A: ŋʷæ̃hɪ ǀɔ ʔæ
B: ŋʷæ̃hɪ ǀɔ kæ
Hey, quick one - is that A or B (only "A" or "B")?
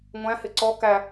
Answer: B